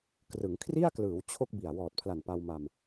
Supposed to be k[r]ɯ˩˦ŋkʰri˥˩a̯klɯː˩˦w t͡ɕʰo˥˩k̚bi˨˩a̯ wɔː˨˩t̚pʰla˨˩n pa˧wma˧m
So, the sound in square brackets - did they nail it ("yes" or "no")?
yes